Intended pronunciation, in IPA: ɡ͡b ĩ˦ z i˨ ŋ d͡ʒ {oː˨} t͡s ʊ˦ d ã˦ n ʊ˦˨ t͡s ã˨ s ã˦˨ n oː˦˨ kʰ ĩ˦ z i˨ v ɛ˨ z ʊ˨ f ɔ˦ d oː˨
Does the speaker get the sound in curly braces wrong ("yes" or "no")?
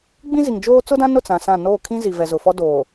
yes